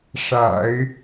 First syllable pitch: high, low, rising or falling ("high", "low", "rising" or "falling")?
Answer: low